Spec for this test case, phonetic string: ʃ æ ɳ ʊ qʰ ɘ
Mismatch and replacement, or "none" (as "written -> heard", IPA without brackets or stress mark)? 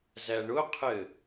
ʃ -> z